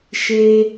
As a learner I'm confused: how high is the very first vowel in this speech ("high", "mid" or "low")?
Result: mid